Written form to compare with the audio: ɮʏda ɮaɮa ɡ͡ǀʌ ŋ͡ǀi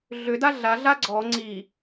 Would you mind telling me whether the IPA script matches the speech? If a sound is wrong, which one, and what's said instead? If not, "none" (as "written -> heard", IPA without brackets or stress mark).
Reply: ʌ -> ɔ